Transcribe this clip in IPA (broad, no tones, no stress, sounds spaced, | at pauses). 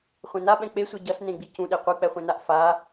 χʷ ẽ n a ɓ ɛ̃ k͡p e sʷ e ɟ ʌ s n ẽ ɡ͡b i c ũ ɗ e qʷ ɯ k͡p ɛ χʷ ẽ n a ʔ f a